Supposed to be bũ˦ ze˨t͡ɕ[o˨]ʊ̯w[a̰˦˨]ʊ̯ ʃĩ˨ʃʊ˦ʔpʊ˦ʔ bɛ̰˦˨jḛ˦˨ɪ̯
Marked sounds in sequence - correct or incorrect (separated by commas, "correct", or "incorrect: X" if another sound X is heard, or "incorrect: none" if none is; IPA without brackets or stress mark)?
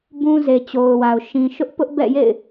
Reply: correct, incorrect: a˨